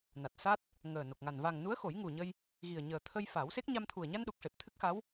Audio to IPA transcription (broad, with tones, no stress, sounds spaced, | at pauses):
n a˨˩ t̚ s a˦˥ t̚ | ŋ əː˨˩ n o˨˩ k̚ ŋ a˨˩ n v a˨˩ ŋ n u˧˥ ə̯ x o˨˩˦ j ŋ u˨˩ ɲ ə˧ j | ɣ i˨˩ ə̯ ɲ əː˨˩ t̪ʰ ə˧ j f a˨˩˦ w s e˦˥ k̚ ɲ a˧ m t̪ʰ u˨˩ ə̯ ɲ a˧ n ɗ u˨˩ k̚ ʂ e˨˩ p̚ t̪ʰ ɨ˦˥ k̚ x a˧˥ w